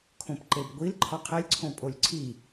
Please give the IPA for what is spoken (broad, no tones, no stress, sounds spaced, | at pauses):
kʰ õ p ǃ e b ɡʷ i l ǃʰ ɒ qʰ e lʲ ǀʰ õ pʼ o lʲ ǀʰ i